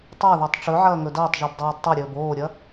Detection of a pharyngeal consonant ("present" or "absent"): present